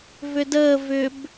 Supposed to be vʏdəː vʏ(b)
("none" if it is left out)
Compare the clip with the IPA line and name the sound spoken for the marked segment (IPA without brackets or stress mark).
b